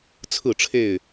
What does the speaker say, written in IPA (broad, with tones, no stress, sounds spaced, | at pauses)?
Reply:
t͡sʰ ɹ̩˥˨ ʈ͡ʂʰ e˥˨ ɪ̯